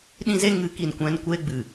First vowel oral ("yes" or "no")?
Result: no